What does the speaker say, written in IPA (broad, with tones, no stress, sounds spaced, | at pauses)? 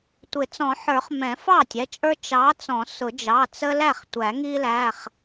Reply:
tʷ ɪ˨˩˦ t͡s ɔ̃˨˩˦ ħ ə˞˨˩˦ χ m ɛ̃˨˩˦ f ɑ˥˩ tʲ ɛ˩˧˩ t͡ʃʼ ə˞˦ t͡ʃ ɑ˨˥ t͡s ɔ̃˨˩˦ s ʊ˨˩˦ d͡ʒ ɑ˩˧˩ t͡s ə˦ l æ˥˩ χ tʷ æ˨˩˦ ŋ i˦ l æ˩˧˩ χ